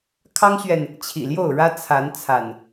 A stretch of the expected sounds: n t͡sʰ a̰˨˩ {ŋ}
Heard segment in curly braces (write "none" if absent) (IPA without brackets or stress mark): n